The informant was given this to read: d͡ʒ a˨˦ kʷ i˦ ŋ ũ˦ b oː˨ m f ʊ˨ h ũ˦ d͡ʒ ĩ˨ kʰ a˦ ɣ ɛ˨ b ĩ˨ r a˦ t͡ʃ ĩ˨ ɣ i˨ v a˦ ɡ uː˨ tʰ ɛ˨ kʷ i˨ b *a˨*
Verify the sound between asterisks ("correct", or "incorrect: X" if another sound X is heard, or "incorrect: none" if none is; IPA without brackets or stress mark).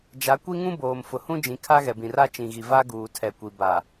correct